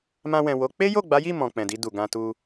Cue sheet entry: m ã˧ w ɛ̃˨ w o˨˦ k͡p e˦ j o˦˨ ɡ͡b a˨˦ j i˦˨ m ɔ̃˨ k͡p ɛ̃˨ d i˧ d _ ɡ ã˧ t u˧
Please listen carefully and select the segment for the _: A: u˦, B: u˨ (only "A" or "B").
B